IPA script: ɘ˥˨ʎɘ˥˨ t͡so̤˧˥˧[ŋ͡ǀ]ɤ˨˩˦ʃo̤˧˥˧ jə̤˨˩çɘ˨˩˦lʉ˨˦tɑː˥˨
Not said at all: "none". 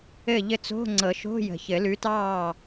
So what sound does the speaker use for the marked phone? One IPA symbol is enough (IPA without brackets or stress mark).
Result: ŋ͡ǀ